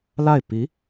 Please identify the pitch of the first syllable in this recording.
falling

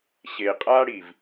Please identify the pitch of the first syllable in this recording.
low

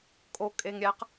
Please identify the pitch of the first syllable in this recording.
low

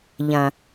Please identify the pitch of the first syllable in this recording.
low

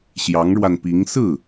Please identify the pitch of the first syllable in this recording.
rising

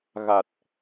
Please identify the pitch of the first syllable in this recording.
low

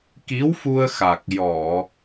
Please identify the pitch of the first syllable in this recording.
rising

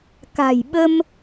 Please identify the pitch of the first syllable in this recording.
low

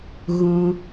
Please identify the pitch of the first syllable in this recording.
high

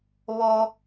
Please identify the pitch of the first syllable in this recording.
high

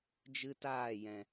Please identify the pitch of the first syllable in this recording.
high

